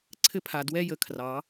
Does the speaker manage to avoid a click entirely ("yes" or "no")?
no